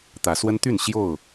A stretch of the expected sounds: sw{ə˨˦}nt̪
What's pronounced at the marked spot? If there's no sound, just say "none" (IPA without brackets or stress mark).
ə˦